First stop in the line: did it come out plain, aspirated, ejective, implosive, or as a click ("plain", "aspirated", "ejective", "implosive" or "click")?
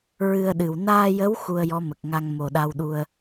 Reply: implosive